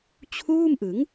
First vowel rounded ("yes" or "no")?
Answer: yes